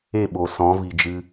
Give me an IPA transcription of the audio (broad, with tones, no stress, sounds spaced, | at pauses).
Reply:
e˦˨ ɓ o˨ s ɔ̃˨˦ v i˨ d͡ʒ ɨ˧